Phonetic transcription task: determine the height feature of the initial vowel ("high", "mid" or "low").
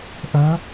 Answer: mid